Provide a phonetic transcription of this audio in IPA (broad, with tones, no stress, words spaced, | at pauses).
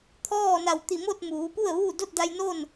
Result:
t̪ʰɔː˥˨na˧˩w t̪i˧˩mo˥˨t̚ muː˩˧pu˥˨ə̯ʋuː˥˨ do˥˨t̚da˧jnoː˥˨n